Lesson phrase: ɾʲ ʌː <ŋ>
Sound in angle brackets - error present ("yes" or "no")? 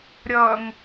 no